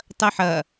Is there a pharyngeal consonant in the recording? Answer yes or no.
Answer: yes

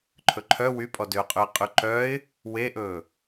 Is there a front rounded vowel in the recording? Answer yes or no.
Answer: yes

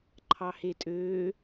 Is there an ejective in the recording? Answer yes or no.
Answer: yes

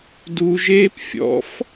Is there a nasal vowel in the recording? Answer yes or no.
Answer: no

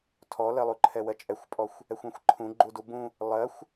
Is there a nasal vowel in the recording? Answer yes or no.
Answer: yes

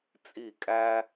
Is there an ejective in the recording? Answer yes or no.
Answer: yes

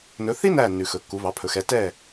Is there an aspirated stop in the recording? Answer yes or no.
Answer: yes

